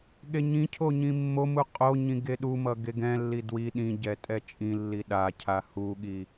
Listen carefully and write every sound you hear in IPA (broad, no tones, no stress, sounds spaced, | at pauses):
ɠ e ɲ ĩ cʰ o ɲ ĩ mː o m u qʼ o ɲ ĩ ɡ e ɗ u m ʌ ɡ e ɡ ɛ̃ lː i d w i ɗ ĩ ɟ ɛ tʼ ɛ t͡ʃʼ ĩ lː i ɗ a cʰ a h u ɠ i